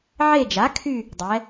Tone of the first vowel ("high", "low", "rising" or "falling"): falling